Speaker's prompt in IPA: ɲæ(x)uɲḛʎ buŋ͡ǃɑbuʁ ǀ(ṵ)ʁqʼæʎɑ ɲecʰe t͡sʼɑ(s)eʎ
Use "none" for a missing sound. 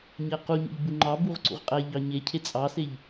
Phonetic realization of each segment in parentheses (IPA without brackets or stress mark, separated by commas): q, ṵ, s